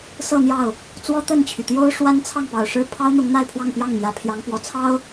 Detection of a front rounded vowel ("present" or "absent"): present